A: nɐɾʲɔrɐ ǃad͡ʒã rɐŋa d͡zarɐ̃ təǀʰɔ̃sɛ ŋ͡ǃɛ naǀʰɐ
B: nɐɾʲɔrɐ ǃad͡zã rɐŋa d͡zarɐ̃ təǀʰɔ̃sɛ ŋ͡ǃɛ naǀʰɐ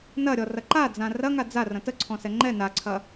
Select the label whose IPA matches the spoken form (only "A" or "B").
B